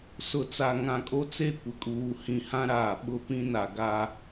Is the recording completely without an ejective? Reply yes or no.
no